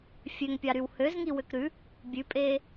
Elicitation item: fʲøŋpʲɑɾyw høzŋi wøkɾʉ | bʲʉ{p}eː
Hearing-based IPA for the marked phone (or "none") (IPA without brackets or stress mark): pʼ